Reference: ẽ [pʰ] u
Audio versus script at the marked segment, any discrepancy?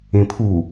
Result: no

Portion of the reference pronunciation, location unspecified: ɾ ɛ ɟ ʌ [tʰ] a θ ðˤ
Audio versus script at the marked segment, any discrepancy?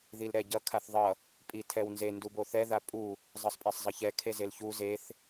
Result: yes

